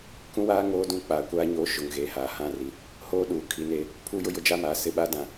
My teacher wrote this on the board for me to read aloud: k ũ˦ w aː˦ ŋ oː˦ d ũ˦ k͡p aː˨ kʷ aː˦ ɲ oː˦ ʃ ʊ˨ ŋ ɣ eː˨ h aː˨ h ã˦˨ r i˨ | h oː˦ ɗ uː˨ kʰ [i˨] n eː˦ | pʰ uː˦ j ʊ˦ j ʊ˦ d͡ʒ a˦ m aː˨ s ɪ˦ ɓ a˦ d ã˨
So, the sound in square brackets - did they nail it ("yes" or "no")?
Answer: no